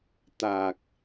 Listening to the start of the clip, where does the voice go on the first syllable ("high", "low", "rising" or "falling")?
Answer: low